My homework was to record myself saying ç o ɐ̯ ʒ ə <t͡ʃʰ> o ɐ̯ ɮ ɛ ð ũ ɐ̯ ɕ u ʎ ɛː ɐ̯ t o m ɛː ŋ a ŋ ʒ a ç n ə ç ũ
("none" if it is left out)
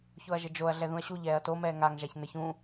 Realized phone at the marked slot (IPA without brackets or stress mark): d͡ʒ